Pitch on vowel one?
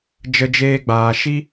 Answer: high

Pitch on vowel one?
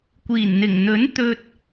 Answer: low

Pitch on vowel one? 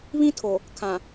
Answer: high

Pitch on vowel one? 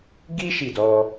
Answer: high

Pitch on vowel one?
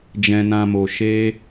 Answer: low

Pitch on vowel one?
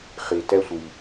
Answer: low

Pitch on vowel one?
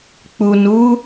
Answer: low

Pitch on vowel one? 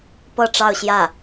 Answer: falling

